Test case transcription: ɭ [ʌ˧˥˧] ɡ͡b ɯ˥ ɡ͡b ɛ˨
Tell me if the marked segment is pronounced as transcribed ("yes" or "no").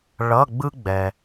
yes